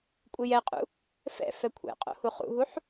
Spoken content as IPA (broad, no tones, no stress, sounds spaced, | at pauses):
kʷʼ ɪ j ɛ qʼ ṵ | f ɛ̰ f ɛ kʷʰ ɛ̰ qʼ o̰ h u χ ṵ ɦ u ħ